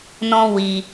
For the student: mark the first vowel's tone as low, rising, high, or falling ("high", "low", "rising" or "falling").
high